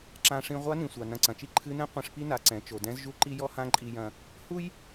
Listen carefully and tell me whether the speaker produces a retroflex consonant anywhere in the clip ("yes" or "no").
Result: yes